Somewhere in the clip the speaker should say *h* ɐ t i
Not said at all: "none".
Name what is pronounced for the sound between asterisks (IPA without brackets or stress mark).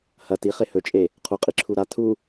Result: h